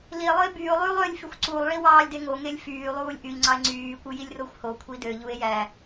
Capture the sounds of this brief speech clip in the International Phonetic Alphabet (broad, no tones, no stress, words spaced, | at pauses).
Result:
lie̯lˠɯe̯ byːo̯lˠyːlˠ ølʲfyxʷ ǀulˠɭi wɑːlʲdeŋoŋelʲ fyːlˠuːlʲ ʔyʎŋ͡ǀɑe̯ ŋ͡ǀyːkʷɯ jilʲroxʷhokʷʰi døʎue̯ jæ